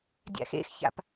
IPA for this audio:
dʲ a̰ x ḛ x ç a̰ p

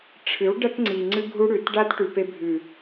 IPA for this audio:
ʈ͡ʂʰ ɨ˨˦ w ɖ ɐ˦ t ŋ͡ǀ i˨ ŋ͡ǀ ɨ˧ ɡʱ u˧ ɽ ʉ˨ t ɖ a˦ t ʈ ʉ˨ p e˧ bʱ ʉ˨

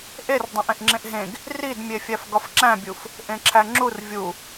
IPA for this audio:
ʔ e r dˤ ẽ ʔ ẽ ʔ ŋ͡ǁ ẽ ʔ ɦ ẽ ɡ | r i d mʲ e fʲ æ f ɡ ɒ f ǁ æ̃ bʲ u f | ʔ ẽ ǁʰ æ ŋ͡ǁ u r vʲ u

